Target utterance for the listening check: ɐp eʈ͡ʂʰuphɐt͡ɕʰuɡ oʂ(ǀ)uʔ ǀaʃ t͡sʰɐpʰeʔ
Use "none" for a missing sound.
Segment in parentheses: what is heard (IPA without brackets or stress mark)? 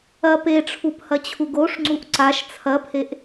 ŋ͡ǀ